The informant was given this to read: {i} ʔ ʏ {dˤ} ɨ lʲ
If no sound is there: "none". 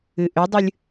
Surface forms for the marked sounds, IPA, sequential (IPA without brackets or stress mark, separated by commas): ɨ, dˤ